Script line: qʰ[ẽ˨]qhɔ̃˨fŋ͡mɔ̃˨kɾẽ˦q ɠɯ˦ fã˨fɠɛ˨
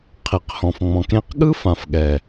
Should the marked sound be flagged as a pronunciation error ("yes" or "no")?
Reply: yes